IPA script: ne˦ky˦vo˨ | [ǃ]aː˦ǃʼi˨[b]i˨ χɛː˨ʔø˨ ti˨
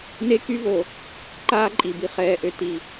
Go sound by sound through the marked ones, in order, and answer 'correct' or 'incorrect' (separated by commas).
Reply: correct, correct